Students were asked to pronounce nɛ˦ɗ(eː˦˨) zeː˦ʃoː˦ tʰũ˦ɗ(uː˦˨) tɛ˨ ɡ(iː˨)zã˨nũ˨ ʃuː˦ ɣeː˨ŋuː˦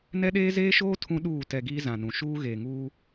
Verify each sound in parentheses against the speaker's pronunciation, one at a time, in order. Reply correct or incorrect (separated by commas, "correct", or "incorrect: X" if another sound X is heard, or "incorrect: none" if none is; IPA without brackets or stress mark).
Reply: incorrect: eː˦, correct, incorrect: iː˦